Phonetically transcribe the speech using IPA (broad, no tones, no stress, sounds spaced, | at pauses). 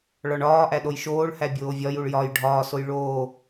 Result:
ɭ ɒ ɳ ɒː ʔ æ ɗ o j ʃ oː ɭ h æ bʲ oː vʲ ɒ j u ɭ j ɒ j ɖʱ ɒː s o j ɭ oː